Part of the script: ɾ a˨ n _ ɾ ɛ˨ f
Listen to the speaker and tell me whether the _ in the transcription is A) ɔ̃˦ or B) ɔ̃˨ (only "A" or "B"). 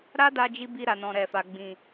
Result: B